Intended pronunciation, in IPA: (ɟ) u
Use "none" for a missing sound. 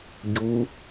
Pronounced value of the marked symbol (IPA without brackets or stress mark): ɟ